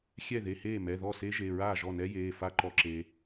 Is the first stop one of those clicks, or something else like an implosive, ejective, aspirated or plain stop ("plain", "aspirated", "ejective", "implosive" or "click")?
click